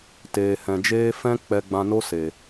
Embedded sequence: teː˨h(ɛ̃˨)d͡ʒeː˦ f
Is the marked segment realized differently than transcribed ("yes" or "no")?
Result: no